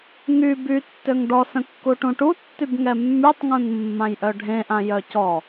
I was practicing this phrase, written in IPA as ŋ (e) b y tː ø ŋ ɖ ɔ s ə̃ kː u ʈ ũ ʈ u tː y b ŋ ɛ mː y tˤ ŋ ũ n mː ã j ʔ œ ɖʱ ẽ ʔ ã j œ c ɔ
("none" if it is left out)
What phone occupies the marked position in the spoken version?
y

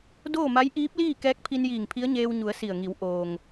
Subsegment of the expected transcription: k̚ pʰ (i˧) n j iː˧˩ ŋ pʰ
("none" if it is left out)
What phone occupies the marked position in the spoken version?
i˧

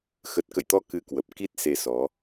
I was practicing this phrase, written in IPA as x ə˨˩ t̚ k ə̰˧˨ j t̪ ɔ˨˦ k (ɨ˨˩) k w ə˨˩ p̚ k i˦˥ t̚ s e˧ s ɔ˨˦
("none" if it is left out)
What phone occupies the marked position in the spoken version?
ɨ˧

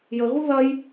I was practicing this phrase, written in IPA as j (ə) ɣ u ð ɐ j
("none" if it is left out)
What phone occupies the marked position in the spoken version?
ə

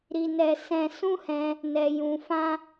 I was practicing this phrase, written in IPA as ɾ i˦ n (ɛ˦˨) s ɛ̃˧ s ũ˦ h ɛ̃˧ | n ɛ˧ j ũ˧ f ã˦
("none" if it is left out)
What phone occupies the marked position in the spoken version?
ɛ˦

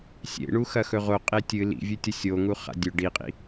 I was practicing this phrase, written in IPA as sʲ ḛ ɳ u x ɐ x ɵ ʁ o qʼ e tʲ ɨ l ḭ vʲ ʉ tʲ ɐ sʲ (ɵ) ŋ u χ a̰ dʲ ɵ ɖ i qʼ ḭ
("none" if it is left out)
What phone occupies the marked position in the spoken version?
o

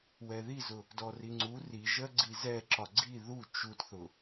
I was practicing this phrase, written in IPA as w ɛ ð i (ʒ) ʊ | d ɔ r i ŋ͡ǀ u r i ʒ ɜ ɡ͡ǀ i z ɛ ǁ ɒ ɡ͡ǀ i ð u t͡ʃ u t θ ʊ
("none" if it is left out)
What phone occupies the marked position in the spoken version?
z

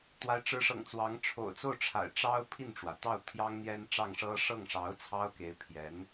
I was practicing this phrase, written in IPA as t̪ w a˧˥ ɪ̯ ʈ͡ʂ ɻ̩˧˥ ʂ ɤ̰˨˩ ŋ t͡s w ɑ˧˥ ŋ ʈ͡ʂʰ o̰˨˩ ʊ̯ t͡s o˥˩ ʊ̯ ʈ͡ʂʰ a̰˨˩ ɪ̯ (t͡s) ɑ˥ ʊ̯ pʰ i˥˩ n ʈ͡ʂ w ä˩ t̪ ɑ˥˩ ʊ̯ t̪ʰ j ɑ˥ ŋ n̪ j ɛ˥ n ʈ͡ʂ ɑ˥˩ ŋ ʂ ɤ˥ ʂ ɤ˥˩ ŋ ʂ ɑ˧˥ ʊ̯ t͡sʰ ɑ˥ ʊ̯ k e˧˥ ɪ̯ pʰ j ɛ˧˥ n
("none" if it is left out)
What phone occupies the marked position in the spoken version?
ʈ͡ʂ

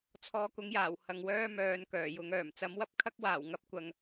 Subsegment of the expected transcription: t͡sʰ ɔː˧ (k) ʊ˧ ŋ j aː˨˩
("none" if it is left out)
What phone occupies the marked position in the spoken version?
k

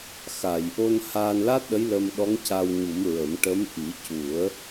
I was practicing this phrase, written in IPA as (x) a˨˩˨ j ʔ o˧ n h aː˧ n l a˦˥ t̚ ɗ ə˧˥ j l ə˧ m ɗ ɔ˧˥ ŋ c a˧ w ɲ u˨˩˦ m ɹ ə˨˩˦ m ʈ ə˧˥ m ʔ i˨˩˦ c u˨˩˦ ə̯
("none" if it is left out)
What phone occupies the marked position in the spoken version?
x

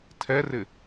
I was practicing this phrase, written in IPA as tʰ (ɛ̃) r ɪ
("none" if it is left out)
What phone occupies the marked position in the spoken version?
ɛ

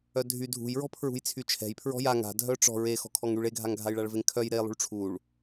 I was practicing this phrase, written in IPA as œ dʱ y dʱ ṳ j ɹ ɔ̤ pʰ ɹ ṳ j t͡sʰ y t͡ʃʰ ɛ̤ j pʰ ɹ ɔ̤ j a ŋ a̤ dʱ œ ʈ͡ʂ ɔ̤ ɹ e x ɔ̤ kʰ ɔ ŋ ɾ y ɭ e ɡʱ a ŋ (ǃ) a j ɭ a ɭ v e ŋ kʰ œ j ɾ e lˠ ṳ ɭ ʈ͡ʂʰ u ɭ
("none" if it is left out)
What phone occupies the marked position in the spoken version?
ɡʱ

